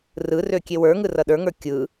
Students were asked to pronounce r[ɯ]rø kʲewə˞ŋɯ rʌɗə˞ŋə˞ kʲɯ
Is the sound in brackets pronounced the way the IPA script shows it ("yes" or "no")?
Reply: yes